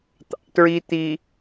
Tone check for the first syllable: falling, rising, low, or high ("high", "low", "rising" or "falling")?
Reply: low